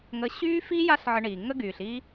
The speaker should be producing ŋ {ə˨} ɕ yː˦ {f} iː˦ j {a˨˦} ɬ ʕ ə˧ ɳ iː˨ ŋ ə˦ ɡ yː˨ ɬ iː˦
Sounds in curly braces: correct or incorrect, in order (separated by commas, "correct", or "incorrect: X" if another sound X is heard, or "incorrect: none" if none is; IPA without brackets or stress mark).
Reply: incorrect: ə˧, correct, incorrect: a˦